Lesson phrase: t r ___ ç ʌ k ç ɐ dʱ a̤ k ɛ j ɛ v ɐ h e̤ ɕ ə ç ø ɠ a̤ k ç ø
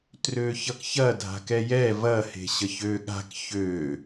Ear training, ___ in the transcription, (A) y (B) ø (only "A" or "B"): B